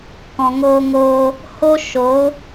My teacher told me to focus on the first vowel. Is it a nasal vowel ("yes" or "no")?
yes